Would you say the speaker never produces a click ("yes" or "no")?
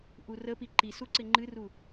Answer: no